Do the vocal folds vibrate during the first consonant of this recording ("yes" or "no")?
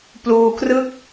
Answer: no